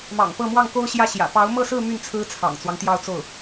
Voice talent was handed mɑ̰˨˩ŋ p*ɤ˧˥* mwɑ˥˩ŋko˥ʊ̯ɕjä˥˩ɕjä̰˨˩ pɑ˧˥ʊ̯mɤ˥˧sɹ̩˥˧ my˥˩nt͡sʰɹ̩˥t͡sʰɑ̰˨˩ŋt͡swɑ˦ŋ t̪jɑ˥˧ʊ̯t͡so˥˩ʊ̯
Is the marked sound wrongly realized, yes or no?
yes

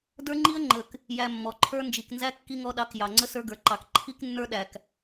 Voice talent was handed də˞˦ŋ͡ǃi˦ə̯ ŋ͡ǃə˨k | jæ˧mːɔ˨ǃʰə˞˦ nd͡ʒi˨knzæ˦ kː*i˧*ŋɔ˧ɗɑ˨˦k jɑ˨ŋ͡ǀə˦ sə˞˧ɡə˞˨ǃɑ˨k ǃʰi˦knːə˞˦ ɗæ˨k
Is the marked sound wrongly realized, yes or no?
no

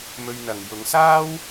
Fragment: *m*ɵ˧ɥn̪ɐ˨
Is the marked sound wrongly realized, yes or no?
no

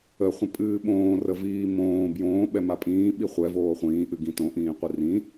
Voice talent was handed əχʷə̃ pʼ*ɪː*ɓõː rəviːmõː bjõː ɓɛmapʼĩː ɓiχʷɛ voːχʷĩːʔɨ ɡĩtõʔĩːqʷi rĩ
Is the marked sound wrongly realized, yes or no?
yes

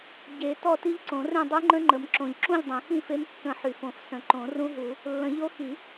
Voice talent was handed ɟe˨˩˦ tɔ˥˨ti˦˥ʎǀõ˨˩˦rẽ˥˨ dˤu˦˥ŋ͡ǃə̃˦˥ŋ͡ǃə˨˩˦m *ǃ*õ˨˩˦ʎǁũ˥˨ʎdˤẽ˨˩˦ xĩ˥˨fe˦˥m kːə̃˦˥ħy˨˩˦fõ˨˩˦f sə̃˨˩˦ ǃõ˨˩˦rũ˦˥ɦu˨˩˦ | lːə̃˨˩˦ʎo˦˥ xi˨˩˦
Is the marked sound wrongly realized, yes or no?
yes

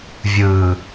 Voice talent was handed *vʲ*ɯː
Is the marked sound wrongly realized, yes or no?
no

